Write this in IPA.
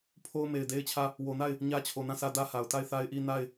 pʰo˦ʊ̯me˨ɪ̯de˦ɪ̯t͡ɕʰä˦˨ | wo˨na˦˨ɪ̯ | ɲä˦t͡ɕʰo˨nã˦˨sʰä˦ dä˦ha˨ʊ̯ ta˦˨ɪ̯θa˦ɪ̯ʔi˦ na˦˨ɪ̯

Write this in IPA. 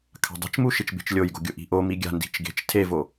kʰa̤dˤi̤t͡ʃmu ʃit͡ʃbe̤t͡ʃlʲojɡo̤ ɡʲʊʔi̤ʔo miɡʲa̤ ndi̤t͡ʃɡe̤t͡ʃ tʰevo

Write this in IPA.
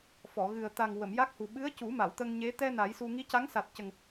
fɔ˨˩˨ɣɨ˨˩ə̯ t̪a˨˩ŋ wə˨˩˨mja˦˥k̚hu˨˩ ɓɨ˧˥ə̯cu˨˩˦ ma˨˩˨wt̪ə˧ŋɲe˧˥ t̪ɛ˧ na˨˩˦jsu˧ ŋi˧˥ca˧˥ŋsa˨˩t̚cə˨˩ŋ

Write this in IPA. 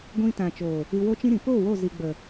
ɡʷĩ˧ tã˨ t͡ʃoː˨ | ɨ˧wo˦t͡ʃĩ˦ ɾĩ˨po˦˨ wo˦˨zi˨ ɡ͡bə˨

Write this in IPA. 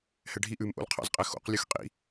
hɛɖʱi ʔʉmʔo̰lqʰɑ̰zqʼɛ xo̰q lʲʉxqʼḭ

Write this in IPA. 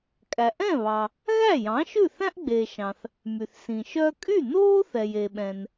kʼæ˩ʔɛ̃˥˩βɑ˩ | ɣæ˥˩jɑ̃˩˥ ʃʉ˥˩θæ̃˥ʔ ɡ͡beː˩ʃɑ̃˩θ | my˩θsĩ˩ ʃœ˧kʼy˥˩ noː˥θɛ˩je˩ɓɛ̃˩n

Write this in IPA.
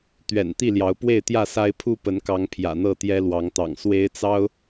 t̪ɥɛ̰˨˩n t̪i˥˨ljɑ˨˦ʊ̯pwe˥˨ɪ̯ t̪jä˥˨sa˦ɪ̯ pʰu˦pə˨˦nkɑ˨˦ŋ pʰjä̰˨˩n̪ɤ˥˨ t̪jɛ˦lwɑ˨˦ŋt̪ɑ̰˨˩ŋ swe˦ɪ̯t͡sɑ˦ʊ̯

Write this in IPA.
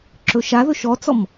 ǁɵʃaðɵ ʃɔt͡sɔm

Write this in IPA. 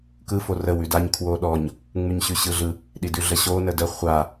kɯ forə wʉdaɲ kʰwoɗɔɲ | ŋ͡mʉɲɕʉɕɯɮɯ | ɗidʉɮəɕo nədə χʷa

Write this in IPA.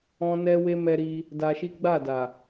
ɔ̃˦nɛ˦we˦ mɛ˧ɾi˧ | da˧ʃi˦ɡ͡ba˦˨da˨

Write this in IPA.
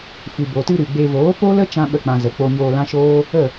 fɨ˨bo˨tɨ˧ ɾɨ˨ɡ͡be˧ voː˨˦po˦lə˦ t͡ʃã˦ɓə˦˨k͡pã˧ zə˨ k͡po˧ɲoː˧ lã˦ʃoː˦ | ə˦˨

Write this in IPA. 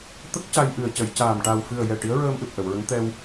t̪ə˦˥k̚ ca˧jʔɨ˨˩ə̯ cə˨˩˨jcaː˨˩m ʈa˨˩wfɨ˨˩ə̯jɛ˨˩ ʈi˧˥ə̯ɹəː˧mʔɨ˨˩p̚ ʔə˨˩˨wɹə˧˥ŋ t̪ɛ˧w

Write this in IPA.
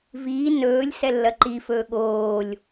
viː nɵːlʲ sɛlːɐǃifɵː ɠoːlʲ

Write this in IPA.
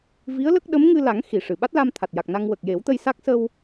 vi˧˥ə̯lə˦˥k̚ɗə˧˥m ŋɨ˧la˨˩˦ŋ xi˨˩ʂɨ˨˩˨ ɓa˦˥t̚la˧m t̪ʰa˨˩t̚ja˨˩k̚na˧ŋ wə˨˩k̚je˨˩˦wt̪ə˧j sa˦˥k̚ sə˧w

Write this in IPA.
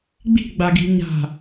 ɡ͡bi̤ɡ͡baɡi̤ ɲa̤

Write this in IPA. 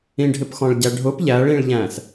ĩɖʱɪpxɔ̃ɭ ɟæɖʱʊp ʎæɭĩɭʎæ̃s

